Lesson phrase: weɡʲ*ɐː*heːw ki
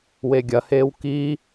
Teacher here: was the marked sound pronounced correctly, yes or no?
no